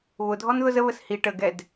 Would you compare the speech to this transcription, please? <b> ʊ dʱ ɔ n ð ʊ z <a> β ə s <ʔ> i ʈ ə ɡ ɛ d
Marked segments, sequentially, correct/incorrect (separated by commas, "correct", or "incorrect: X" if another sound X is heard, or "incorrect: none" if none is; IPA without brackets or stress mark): incorrect: β, incorrect: ə, incorrect: h